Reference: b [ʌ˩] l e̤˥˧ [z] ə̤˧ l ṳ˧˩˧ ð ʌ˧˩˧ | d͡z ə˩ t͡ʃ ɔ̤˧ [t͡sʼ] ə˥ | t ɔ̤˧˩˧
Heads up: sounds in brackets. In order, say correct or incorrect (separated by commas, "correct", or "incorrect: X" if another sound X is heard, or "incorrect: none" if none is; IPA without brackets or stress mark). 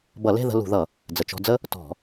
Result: incorrect: ʌ˧˩˧, incorrect: ð, incorrect: d͡z